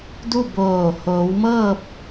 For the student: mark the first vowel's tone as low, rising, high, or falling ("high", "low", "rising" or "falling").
falling